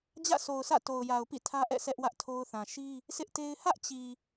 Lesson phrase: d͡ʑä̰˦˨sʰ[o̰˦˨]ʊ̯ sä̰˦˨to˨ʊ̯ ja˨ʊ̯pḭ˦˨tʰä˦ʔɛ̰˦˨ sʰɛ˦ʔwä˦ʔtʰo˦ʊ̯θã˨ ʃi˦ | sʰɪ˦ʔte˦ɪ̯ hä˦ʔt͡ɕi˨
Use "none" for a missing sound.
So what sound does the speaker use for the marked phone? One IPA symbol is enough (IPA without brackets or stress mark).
o˨